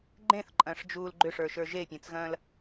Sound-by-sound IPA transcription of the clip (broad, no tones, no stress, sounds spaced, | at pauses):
ɡ͡ǃ ẽ θ ǃʼ ɐ̃ː ʂ d͡ʒ uː l ɡ͡ǃ ʏ ʂ ə˞ ʃ ə˞ ʒ e pʲ ẽ t͡s ɣ ɐ̃ː l